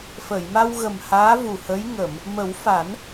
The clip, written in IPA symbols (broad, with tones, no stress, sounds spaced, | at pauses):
f ə˨˩˨ j m a˧ w ɣ ə˨˩ m h aː˧˥ v u˨˩ h ə˧˥ j ŋ ə˨˩˨ m | m ə˨˩˦ w f a˨˩˦ n